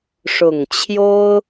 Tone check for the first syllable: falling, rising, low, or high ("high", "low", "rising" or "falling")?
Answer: low